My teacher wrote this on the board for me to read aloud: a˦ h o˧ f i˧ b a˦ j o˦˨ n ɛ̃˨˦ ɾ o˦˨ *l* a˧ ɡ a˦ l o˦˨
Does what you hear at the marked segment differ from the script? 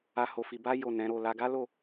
no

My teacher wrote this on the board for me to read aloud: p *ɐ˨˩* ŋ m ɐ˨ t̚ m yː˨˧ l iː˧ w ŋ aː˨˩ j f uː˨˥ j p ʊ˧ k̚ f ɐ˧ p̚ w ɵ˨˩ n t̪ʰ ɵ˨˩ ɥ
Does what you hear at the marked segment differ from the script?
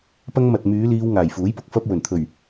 yes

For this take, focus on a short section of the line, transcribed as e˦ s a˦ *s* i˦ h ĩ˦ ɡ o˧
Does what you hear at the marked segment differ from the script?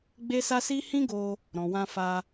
no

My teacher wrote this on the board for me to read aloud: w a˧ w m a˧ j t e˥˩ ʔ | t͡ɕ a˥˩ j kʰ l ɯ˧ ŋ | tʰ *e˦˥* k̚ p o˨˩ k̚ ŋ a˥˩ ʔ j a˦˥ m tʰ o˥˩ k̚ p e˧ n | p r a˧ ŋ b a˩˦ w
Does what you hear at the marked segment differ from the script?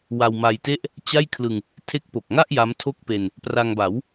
no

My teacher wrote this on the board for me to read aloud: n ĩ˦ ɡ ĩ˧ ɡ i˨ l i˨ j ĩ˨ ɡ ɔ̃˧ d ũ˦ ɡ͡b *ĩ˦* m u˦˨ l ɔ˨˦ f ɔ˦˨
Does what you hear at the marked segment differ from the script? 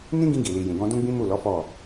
no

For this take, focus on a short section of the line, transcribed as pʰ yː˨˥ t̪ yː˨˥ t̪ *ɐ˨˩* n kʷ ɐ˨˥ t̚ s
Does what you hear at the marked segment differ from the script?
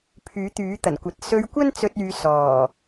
no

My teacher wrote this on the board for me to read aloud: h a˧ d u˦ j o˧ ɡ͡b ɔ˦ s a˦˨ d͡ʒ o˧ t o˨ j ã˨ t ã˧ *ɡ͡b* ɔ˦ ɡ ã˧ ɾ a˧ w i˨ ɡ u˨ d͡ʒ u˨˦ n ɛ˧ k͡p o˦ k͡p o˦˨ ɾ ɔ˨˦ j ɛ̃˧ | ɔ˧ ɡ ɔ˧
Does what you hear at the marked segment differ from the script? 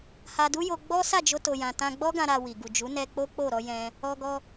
no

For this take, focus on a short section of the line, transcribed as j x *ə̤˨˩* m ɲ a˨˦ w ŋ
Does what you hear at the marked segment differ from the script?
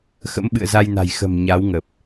no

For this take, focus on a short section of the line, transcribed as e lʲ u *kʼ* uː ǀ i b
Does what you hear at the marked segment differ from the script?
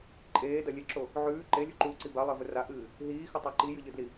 yes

